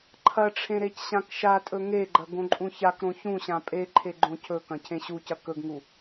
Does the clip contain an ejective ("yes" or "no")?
yes